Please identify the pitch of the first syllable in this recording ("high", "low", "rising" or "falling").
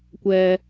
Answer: low